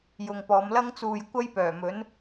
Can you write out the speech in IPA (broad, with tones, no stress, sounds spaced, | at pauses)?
j ʊ˨ ŋ p ɔː˨˧ m l ɐ˥ ŋ t͡s uː˨ j kʷ ɐ˥ j p œː˨˩ m ɵ˨˥ n